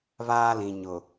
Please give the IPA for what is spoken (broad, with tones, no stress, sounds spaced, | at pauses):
β aː˦ l ĩ˨ ɲ ʊ˨